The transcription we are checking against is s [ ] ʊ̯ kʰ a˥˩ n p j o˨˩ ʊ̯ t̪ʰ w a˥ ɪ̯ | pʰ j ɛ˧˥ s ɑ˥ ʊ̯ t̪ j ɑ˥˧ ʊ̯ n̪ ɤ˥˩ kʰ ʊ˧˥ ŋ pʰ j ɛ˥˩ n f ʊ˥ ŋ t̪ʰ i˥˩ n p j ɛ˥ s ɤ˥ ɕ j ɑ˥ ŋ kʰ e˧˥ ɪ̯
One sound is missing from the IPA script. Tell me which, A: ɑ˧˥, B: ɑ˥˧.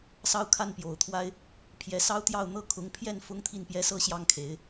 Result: B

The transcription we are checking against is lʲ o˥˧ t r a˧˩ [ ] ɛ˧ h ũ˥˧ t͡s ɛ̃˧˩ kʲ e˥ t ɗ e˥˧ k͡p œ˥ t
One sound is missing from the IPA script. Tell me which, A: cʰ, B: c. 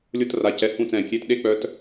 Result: B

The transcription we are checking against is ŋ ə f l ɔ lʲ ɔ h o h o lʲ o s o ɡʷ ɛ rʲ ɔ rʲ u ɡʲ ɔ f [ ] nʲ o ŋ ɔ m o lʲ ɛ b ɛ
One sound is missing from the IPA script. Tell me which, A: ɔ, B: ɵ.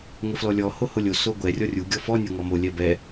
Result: A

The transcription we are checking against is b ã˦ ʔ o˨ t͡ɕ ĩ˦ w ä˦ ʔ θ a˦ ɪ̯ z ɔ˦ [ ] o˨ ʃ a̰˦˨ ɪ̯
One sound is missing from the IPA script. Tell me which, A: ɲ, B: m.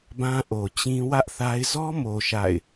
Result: B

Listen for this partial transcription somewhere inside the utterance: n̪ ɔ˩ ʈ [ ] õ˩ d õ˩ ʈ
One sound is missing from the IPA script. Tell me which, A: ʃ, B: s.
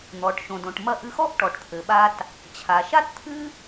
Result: A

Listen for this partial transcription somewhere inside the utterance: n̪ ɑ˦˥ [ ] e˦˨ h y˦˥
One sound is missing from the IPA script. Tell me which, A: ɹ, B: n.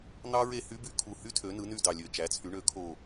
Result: A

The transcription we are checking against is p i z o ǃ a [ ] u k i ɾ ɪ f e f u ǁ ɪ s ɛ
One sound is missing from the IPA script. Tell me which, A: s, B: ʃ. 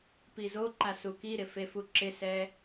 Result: A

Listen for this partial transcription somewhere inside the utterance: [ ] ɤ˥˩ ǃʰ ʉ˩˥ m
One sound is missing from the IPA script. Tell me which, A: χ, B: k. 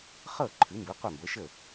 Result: A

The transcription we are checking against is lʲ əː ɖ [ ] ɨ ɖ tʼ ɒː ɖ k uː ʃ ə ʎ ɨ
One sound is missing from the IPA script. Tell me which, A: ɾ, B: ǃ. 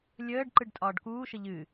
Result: B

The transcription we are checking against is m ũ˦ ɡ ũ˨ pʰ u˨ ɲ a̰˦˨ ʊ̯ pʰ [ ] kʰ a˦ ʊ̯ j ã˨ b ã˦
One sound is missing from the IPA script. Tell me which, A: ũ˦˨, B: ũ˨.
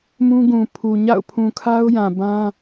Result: B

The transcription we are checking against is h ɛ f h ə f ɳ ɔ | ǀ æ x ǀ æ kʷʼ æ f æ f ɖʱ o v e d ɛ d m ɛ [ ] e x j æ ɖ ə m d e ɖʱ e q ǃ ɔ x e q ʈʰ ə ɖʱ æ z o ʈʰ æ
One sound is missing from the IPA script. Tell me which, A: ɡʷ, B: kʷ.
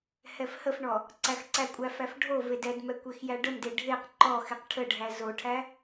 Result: B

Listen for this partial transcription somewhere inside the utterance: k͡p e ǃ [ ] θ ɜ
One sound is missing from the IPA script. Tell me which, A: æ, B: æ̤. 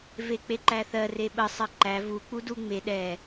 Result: A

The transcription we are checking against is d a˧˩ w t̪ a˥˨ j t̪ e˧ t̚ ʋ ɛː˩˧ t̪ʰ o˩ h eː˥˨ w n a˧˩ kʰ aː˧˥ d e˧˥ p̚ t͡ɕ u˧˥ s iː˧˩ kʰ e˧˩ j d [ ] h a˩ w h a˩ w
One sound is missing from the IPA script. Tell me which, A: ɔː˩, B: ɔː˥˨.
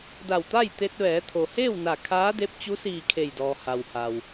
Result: A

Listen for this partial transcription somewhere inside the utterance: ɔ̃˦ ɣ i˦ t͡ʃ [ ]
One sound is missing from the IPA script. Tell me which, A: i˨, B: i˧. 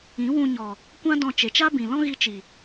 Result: A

